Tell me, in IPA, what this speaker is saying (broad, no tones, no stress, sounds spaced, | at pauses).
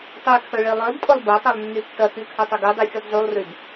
tˤ y kʰ œ ɭ e lˠ œ d tʼ ʊ lˠ b ɐ tˤ ɛ lˠ nː y tː ɐ k y kʰ ɐ tˤ ʊ ɡ u dˤ y fʲ u d zˤ u lˠ r y d